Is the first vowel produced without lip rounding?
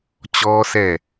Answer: no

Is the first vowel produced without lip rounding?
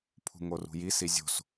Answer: no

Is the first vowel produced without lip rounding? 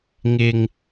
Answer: yes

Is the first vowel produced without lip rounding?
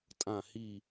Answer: yes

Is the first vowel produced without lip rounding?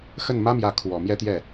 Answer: yes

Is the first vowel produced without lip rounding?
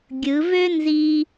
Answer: yes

